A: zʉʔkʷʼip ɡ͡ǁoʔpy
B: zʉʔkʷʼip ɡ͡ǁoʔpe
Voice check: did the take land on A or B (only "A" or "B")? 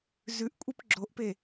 B